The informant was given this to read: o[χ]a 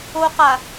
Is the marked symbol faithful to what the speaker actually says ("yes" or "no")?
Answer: no